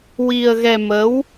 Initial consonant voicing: voiced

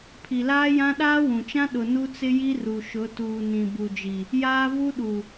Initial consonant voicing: voiceless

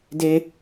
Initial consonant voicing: voiced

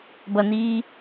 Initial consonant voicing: voiced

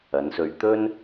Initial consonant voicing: voiced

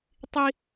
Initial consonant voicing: voiceless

